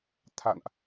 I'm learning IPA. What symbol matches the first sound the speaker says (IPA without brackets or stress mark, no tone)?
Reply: t̪ʰ